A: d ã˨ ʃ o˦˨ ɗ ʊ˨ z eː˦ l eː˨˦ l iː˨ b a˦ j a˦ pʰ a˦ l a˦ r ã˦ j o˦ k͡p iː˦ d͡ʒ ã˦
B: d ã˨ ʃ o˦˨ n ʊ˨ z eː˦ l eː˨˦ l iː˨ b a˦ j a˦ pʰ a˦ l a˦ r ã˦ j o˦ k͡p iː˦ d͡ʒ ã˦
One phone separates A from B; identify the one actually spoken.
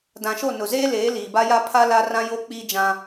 B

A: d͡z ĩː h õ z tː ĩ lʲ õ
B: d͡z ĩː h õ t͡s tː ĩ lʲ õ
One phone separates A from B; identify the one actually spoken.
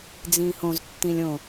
A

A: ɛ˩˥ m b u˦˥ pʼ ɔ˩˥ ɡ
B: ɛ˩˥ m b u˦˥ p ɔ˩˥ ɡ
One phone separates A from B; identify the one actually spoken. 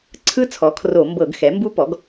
B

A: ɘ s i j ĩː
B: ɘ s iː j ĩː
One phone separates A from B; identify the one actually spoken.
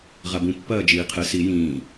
A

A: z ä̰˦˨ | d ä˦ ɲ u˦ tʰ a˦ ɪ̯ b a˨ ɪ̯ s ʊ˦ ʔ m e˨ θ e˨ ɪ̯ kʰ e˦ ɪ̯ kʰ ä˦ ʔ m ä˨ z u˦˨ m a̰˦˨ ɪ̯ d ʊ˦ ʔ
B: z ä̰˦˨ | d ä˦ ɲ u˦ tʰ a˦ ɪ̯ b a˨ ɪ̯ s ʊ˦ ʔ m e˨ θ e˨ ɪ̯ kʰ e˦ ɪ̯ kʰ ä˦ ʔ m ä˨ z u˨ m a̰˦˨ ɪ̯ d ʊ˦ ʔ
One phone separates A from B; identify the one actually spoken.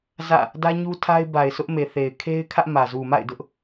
B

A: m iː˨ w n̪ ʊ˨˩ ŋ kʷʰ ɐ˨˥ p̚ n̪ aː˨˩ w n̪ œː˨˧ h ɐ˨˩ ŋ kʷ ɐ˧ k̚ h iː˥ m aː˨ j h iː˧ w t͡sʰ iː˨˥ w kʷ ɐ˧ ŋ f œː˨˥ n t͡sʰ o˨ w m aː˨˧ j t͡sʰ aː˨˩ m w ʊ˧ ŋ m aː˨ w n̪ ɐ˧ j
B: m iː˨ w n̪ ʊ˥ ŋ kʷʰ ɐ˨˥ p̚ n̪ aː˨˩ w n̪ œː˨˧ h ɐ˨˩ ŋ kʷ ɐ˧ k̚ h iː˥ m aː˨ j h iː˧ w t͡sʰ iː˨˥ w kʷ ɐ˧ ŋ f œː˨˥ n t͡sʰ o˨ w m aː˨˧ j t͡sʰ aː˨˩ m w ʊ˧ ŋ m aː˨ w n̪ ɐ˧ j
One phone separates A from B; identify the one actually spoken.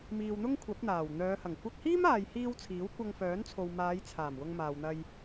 B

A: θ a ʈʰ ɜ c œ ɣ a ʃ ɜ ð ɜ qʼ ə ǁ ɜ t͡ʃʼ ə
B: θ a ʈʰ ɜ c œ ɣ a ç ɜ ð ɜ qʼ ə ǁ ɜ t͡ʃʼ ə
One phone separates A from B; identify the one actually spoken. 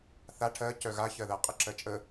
B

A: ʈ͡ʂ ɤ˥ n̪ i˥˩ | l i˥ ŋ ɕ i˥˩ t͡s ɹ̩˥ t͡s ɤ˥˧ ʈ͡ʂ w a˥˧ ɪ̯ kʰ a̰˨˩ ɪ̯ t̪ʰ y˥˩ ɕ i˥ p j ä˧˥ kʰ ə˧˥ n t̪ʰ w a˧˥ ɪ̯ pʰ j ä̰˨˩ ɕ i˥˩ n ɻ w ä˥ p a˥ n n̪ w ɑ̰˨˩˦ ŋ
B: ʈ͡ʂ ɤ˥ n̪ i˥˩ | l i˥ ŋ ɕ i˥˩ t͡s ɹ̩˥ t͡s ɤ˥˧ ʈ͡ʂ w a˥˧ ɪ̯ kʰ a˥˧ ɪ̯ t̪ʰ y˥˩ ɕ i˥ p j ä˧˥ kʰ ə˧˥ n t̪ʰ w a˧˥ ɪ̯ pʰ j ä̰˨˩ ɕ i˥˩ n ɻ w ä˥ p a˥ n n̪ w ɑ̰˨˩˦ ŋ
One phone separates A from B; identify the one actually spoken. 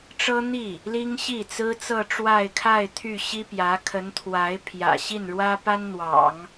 B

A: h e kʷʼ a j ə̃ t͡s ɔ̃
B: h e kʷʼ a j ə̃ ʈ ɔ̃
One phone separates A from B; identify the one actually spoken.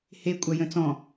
A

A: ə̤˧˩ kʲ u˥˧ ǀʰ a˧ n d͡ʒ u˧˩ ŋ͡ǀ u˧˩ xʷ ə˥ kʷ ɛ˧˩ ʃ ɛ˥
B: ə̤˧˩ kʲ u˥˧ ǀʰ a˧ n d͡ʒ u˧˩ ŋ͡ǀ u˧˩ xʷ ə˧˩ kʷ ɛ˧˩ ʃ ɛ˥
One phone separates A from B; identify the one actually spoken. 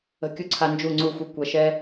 B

